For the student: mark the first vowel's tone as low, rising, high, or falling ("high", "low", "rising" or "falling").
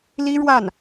high